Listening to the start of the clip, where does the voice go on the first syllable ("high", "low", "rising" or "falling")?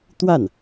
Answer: falling